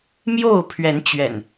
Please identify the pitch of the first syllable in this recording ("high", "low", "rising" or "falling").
falling